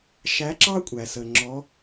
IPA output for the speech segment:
ʃ æ˧˥ ǁ ɑ˥ kʷʼ æ˩ s ə˩ ŋ͡ǁ ɔ˩˧

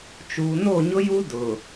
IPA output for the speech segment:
t͡ʃ uː˨ n o˦˨ ɲ ʊ˦ j u˦ d ʊ˨

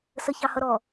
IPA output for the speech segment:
s ə ç ɑ h ʌ ɾ ɔ

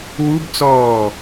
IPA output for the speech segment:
w u b t͡s ɔː

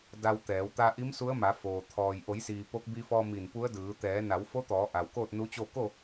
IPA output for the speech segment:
d a˧ w t̪ ɛː˩˧ w t̪ a˧ ʔ i˧˥ m s u˧˥ ə̯ m a˩˧ f oː˩ t̪ʰ ɔː˩ j ʔ o˩˧ j s iː˩ p o˧˥ k̚ b i˧ f ɔː˧ m i˧˩ n p u˧˥ ə̯ d ɯː˩˧ t̪ ɛː˩˧ n a˩˧ w f o˧˥ t̪ ɔː˩˧ ʔ a˩ w k oː˥˨ t̚ n u˧˥ t͡ɕ o˥˨ k o˥˨

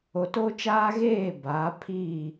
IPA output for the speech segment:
o˨ t oː˦ t͡ʃ aː˦ ɣ eː˦˨ b aː˨˦ pʰ iː˦˨

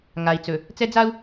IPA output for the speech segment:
ŋ a˨ i̯ t͡s ɵ˨ | t͡s ɛ˦ d͡z a˦ u̯

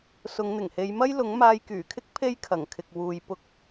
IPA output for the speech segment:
s ʊ˨˧ ŋ n̪ ɪ˨˩ ŋ h e˨˧ j m ɐ˥ j l ʊ˨˥ ŋ m aː˧ j k yː˨˩ kʰ ɪ˥ k̚ pʰ e˥ j kʰ ɐ˨˩ ŋ kʰ ɪ˨ k̚ w uː˨ j p ʊ˧ k̚

